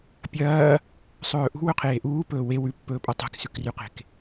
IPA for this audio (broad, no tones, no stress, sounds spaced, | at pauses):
pʲ ɐː | sˤ ɵː ʔ ṳ w ɵ qʰ eː ʔ uː p ɵː w e w ʉ pː ɵː pʼ ɐ tˤ e̤ k s ʉ k r ʉ q e̤ k